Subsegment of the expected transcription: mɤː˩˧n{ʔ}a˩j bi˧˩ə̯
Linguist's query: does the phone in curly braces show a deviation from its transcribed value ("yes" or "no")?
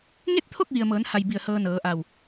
yes